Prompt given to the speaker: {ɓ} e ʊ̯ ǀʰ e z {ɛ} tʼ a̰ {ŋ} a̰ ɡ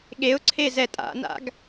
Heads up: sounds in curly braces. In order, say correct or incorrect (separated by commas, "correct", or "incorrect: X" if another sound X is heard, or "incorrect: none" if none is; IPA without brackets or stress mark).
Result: incorrect: ɠ, correct, incorrect: n